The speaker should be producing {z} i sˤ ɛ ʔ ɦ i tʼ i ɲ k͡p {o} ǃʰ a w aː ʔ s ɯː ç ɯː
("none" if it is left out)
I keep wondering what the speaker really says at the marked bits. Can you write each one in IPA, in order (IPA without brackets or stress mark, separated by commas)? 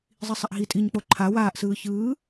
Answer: zˤ, o